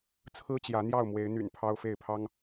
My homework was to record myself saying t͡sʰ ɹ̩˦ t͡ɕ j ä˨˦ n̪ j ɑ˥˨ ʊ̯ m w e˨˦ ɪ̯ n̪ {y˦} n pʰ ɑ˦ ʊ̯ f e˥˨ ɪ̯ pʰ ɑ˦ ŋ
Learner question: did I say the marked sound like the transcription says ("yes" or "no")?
no